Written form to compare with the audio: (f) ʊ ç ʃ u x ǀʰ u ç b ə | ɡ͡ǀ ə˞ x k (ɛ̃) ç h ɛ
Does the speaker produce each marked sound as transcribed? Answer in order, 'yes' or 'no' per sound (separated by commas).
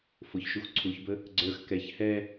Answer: yes, no